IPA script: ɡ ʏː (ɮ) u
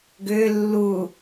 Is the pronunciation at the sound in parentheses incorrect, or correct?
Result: incorrect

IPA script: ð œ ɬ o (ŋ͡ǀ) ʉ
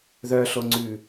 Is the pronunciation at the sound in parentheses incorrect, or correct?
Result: correct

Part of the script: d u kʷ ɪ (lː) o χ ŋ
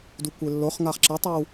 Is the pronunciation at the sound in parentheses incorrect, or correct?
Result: correct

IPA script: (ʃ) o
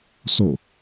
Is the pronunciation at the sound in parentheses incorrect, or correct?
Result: incorrect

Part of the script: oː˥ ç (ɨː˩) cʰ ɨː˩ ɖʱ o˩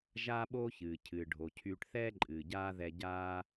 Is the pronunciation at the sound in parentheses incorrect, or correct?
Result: correct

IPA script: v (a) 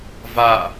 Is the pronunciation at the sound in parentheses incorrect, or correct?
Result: correct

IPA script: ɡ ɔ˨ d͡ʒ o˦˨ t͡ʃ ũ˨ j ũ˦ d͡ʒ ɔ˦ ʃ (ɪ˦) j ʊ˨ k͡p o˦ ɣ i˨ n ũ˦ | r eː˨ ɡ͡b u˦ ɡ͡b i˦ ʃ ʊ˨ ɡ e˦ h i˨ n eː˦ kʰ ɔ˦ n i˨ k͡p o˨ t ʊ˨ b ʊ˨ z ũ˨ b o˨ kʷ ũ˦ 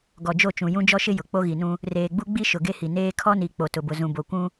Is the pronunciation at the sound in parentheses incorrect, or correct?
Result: correct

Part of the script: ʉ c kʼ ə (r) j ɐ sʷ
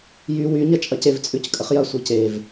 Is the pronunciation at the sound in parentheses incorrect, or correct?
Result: incorrect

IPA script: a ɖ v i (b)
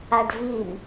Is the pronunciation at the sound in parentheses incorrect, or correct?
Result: incorrect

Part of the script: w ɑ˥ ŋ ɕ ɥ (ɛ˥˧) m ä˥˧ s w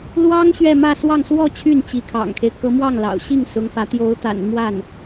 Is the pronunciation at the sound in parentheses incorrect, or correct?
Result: correct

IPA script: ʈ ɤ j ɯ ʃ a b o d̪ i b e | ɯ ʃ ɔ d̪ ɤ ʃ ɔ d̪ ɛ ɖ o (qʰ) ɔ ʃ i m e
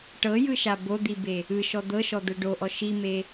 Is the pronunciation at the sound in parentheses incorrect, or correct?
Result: incorrect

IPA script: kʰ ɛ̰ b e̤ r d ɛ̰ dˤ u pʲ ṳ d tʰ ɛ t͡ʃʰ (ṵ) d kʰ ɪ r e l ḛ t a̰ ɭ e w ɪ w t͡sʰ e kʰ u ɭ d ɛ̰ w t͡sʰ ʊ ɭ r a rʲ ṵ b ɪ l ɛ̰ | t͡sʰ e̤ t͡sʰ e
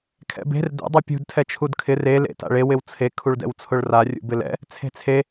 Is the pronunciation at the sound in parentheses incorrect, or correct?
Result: incorrect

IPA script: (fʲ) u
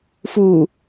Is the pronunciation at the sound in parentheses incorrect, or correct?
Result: incorrect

